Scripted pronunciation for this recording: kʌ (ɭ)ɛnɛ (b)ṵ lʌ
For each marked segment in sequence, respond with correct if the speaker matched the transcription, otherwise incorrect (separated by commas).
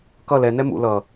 incorrect, incorrect